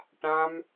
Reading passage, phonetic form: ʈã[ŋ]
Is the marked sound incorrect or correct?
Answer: incorrect